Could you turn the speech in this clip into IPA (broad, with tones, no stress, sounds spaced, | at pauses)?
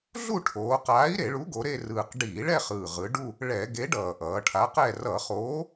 ɮ u˥˧ ʈʰ oː˩˧ q aː˨˥ i̯ ɾ e˧˩˧ ɭ u˨˥ ɡ o˩˧ ɾ e˥˧ r ɯː˨˩ q ɖ iː˧˩˧ ɭ ɛ˥˧ χ ɯː˨˩ ʁ ɯ˩˧ ɖ u˥˧ | ɭ ɛ˧˩˧ ɡ e˨˥ ɖ ʌː˨˩ ʔ ʌː˩˧ ʈʰ a˨˥ q ɛ˥˧ r ʌ˧˩˧ χ oː˨˥